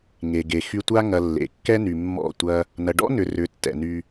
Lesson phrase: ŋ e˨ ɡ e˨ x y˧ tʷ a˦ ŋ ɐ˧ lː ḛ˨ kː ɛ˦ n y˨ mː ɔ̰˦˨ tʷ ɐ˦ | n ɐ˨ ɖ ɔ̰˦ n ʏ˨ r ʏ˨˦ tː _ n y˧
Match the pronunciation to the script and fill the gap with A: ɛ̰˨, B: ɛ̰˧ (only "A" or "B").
A